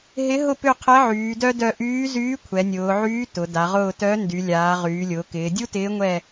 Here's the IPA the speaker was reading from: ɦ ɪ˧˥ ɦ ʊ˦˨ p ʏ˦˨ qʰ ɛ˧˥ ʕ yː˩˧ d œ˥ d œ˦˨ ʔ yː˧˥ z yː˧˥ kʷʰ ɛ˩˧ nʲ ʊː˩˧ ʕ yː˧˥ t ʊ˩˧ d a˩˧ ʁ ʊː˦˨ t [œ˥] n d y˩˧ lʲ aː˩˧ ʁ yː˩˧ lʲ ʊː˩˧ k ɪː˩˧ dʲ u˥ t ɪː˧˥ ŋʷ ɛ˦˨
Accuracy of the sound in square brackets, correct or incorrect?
incorrect